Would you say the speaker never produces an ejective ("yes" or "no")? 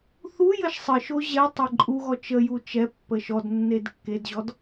no